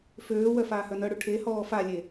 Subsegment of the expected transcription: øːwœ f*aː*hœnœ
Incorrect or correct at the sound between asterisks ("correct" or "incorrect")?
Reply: correct